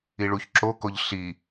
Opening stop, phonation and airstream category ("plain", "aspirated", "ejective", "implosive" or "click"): click